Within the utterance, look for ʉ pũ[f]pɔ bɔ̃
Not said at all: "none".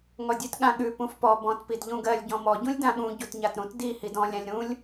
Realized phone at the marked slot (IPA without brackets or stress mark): f